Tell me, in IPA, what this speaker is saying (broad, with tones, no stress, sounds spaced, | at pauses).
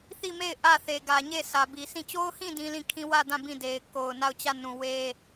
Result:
θ i˦˨ m e˦˨ ɪ̯ ʔ ä˦˨ θ e˨ ɡ ä˨ ɲ e˦˨ s ä˨ b i˨ s ĩ˦˨ t͡ɕ o˦ ʊ̯ h ĩ˦˨ d ĩ˦ l ĩ˦˨ kʰ ĩ˦ w ä˦˨ d ã˦˨ b ĩ˦˨ d e˨ ɪ̯ k o˨ ʊ̯ n a˦˨ ʊ̯ t͡ɕ ä˦˨ n ũ˨ w e˦